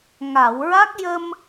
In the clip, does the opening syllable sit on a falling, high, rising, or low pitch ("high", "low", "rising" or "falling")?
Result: low